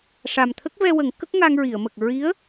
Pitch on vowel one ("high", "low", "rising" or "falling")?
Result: low